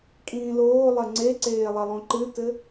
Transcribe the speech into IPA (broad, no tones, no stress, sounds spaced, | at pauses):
kʼ ĩː l oː lˠ ɐ ŋ͡ǀ e ǀ eː lˠ ɐ lˠ õ ǃ ɨ t ɘ